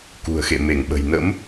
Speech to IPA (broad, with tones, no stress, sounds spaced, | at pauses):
k ṳ˨˩ ə̯ x ḛ˧˨ m e˧˩ ŋ ɓ ə̤˨˩ j n ə̰˧˥ m